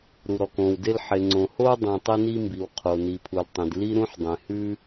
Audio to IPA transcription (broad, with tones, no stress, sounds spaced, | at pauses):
ɾ u˩ ɾ ɔ˩ k õ˩ w d e˥ l ħ e˩ ŋ͡ǀ õ˩ h o˥ dˤ õ˩ tˤ e˥ n i˥ m b i˩ w qʰ o˩ n i˩ pʰ u˩ l tˤ ẽ˩ d l i˥ ɾ ũ˥ ħ dˤ ẽ˩ h ʉ˥